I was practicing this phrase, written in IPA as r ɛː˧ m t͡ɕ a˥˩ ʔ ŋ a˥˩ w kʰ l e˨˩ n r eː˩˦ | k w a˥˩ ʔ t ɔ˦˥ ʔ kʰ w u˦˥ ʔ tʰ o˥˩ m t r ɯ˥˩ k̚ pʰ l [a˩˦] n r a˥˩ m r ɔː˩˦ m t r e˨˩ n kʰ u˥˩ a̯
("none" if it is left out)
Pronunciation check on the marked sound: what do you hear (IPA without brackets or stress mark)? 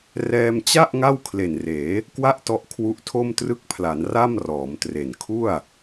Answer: a˩˦